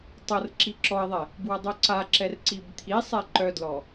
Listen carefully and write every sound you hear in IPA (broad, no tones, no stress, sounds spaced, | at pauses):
tˤ ɤ r ǁ i ǁ ɔ ɪ̯ ðˤ ɛ | b w ʌ dˤ œ ǀ a ǁ ɛ r ǀ i b t̪ʰ i sˤ ɛ ǃ œ d l ɔ